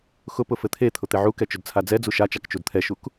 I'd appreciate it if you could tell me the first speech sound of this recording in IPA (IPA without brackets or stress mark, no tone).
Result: x